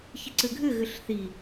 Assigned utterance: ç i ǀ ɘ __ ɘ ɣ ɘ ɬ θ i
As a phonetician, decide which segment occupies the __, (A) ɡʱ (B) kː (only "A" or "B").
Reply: A